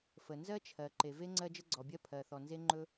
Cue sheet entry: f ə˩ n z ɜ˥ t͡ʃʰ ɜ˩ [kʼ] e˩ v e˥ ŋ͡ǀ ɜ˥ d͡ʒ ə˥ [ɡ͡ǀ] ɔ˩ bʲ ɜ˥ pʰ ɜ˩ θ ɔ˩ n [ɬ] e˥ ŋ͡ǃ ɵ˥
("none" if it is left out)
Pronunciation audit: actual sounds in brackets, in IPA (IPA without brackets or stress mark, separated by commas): ǃ, ɡ͡ǀ, z